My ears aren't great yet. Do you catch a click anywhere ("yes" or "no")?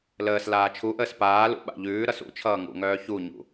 no